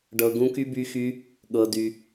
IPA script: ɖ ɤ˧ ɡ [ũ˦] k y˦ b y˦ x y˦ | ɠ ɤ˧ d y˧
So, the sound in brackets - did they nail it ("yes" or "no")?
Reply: yes